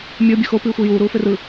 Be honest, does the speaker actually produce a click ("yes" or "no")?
no